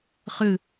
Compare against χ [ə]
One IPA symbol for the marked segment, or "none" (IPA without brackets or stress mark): ɨ